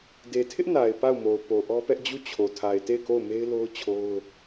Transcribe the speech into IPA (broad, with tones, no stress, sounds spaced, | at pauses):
d e˨ tʰ ɪ˦ ʔ n a˨ ɪ̯ p a˦˨ ʊ̯ m o˨ ʊ̯ p o˨ ʔ ɔ˦ p ɛ˦ ʔ d͡ʑ u˦˨ t͡ɕʰ o˨ tʰ a˨ ɪ̯ t e˦˨ ɪ̯ k o˦˨ ʊ̯ m e˦ ɪ̯ l o˦ ʊ̯ t͡ɕʰ o˦ ʊ̯